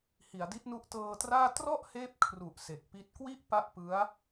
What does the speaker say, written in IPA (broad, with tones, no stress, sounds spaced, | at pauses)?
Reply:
h i˩˦ a̯ d i˦˥ t̚ n u˦˥ ʔ t ɤː˧ t r aː˥˩ t r ɔ˥˩ ʔ h eː˦˥ p̚ kʰ r u˨˩ ʔ s e˨˩ k̚ p i˦˥ t̚ k w i˥˩ ʔ p a˥˩ ʔ p ɯ˦˥ a̯